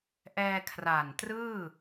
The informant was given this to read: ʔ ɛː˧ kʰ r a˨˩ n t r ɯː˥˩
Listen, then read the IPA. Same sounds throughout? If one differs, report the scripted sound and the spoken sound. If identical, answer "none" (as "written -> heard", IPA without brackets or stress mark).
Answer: none